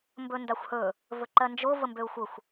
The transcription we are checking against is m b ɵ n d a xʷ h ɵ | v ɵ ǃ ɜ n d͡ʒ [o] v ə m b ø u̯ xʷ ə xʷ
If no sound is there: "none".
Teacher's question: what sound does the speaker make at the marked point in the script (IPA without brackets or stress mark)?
o